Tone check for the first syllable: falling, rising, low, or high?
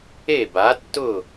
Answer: falling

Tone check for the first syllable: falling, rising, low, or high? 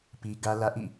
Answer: high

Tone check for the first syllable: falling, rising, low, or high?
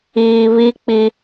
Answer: low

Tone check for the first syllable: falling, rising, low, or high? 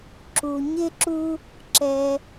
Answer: low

